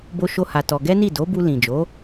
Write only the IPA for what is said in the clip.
b o˦ ʃ o˦ h a˧ t ɔ˧ ɡ ɛ˦ n i˦˨ d o˨˦ b u˧ l ĩ˨ d͡ʒ o˨˦

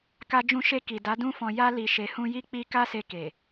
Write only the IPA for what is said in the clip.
k a˧ d͡ʒ ũ˧ ʃ e˧ k i˨ d a˨˦ d ũ˦ f ɔ̃˧ j a˧ l i˨ ʃ e˨ h ũ˧ j i˦ k͡p i˧ k a˦ s e˧ k e˨

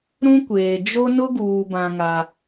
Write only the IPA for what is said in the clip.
ɾ ũ˦ kʷ eː˨ d͡ʒ o˦ n ʊ˦ ɡ uː˨ b ã˦ ŋ a˦

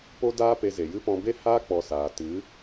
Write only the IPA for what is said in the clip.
p o˦ d aː˦ p e˧ z e˨ j ɨ˦ p ɔ̃˦ b e˦ h aː˦ k͡p ɔ˦ s aː˧ t ɨ˨˦

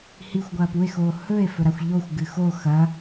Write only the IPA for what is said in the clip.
h i xʷ ɡʷ ɐː p u e̯ x oː h ɵ e̯ f ɵ ɾ a xʷ ʎ o xʷ ɡ ɨ x o x ɐ

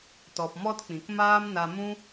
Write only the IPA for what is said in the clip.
t ɔ˨ p m ɔ˦ t k͡p ĩ˨ k m aː˦ m n a˧ m ũ˦

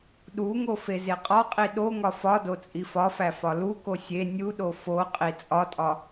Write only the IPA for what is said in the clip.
ɗ u ŋ o f e z e qʼ ɒ qʼ i ɗ o ŋ ɒ f ɒ d o t͡sʼ i f ɒ f æ f ɒ l u k o sʲ e nʲ u ɗ o f o qʼ i t͡sʼ ɒ tʼ ɒ

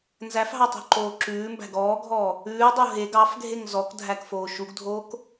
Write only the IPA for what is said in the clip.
n z æ f ɦ ɑ tˤ o̤ ǃ oː ǁ ʉː m b æ̤ ɡ ɔː ɡʱ ɔː | ʉː dˤ o ɦ e ɡ ɑ f ɡʱ e ŋ z ɔ k dʱ æ k f oː ʃ u ɡ dʱ oː k

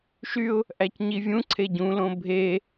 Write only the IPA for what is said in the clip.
ʃ y ʊ̯ | ʔ æ c ɲ i vʲ ũ ǀʰ e ɟ ũ l õ bʱ e

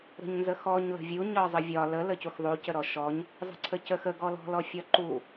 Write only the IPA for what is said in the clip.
ɾ ə̤ ɲ n z ə x ɔ ɲ l ə̤ vʲ u ɲ ɒ zˤ ə vʲ ɒ l ə l ə c u x ðˤ u c ə ɾ ɔ ʃ ɔ ɲ | zˤ ə̤ ǀʰ ə c ə x ə ɡ ɔ l ɔ̤ l ɔ fʲ ɒ ǃ u

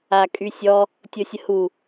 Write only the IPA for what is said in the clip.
a kʼ y sʲ ɔ | tʲ o sʲ ə h u

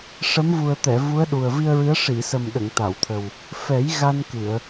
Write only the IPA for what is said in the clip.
ʂ ə˧˥ m v u˨˩ ə̯ t̪ ɛ˨˩˨ v u˧˥ ə̯ ɗ u˨˩ ə̯ v i˧ ə̯ ɹ ɨ˧˥ ə̯ ʂ i˨˩˨ s ə˨˩ m ɗ ə˨˩˨ ŋ t̪ a˨˩˨ w t̪ʰ ə˨˩ w | f ɛ˨˩˦ j ɣ a˧ n k ɨ˨˩˨ ə̯

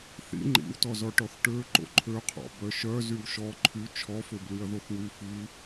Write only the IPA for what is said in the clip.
θ ḭ ŋ͡ǃ ḭ w t ɔ z ɔ ʈ ɔ θ ʈ ø ǃ o̰ ǃʰ ø qʰ ɔ̰ b œ ʃ œ z y w ʃ ɔ ǃʰ y t͡ʃʰ ɔ f ø b l y ɐ̯ ð o θ w y f i

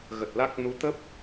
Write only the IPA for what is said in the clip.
ɣ ə˨˩ t̚ l a˦˥ k̚ n u˨˦ t̪ ə˦˥ p̚

